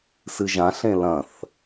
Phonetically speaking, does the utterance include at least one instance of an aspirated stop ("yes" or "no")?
no